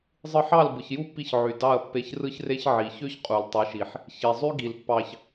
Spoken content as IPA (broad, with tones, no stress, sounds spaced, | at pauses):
zˤ ɯ˧ ħ ɑ˦˨ l b ɯ˨ ç j u˦ pː i˧ ç ʕ y˨ d ɑ˦˨ ɐ̯ pː e˧ ç r ɯ˦ ç r e˦ ç ʕ i˨ ç ø˦ ç qʼ u˨ l tˤ ɯ˨˦ ʃ i˨ ħ | ç i˨ zˤ y˦ ɡ i˨ l pː ɑ˧ ç